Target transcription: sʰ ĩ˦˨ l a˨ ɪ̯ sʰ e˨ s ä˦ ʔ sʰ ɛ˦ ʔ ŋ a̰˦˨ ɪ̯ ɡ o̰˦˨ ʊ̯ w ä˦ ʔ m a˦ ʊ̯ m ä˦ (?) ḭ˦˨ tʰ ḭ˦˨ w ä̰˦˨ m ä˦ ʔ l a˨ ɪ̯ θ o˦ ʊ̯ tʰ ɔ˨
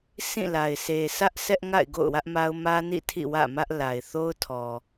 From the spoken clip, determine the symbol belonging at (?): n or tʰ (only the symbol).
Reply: n